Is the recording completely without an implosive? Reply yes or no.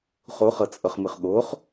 no